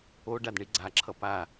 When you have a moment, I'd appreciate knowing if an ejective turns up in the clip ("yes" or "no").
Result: no